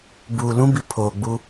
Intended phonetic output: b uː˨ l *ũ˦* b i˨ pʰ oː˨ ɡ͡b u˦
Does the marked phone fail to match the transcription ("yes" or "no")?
no